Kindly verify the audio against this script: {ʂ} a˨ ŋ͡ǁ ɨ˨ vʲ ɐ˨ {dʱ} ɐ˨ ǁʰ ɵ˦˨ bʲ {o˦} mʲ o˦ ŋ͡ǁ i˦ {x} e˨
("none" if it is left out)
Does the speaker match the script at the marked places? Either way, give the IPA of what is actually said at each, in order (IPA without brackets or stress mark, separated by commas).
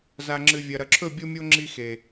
z, ɾ, o˦, x